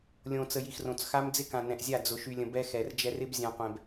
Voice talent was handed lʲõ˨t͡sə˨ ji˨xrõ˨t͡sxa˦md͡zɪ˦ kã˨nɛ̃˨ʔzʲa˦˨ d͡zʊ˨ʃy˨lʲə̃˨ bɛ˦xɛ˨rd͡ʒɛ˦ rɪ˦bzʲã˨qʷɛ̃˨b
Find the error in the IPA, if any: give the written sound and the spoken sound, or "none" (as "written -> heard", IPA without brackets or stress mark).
none